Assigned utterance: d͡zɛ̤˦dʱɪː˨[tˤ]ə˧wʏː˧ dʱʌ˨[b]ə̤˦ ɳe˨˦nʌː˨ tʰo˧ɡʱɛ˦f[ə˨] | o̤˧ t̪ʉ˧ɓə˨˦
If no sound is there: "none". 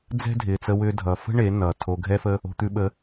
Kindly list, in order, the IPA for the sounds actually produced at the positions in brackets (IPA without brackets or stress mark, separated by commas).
t͡s, f, ə˦